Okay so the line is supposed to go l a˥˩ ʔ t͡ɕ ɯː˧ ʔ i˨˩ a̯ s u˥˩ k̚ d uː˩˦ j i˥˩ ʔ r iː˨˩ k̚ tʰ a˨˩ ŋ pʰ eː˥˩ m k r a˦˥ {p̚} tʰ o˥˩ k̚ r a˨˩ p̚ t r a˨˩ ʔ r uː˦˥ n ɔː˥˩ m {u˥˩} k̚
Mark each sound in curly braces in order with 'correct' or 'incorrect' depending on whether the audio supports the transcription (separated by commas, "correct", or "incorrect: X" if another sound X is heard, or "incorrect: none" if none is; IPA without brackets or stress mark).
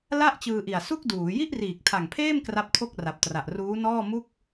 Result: correct, correct